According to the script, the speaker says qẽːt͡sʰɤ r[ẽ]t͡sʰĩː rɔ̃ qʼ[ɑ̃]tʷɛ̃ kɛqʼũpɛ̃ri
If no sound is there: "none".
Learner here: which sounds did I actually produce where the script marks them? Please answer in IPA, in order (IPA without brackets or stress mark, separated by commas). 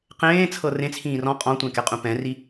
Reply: ẽ, ɔ̃